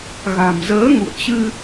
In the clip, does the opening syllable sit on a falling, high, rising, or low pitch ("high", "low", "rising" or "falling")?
low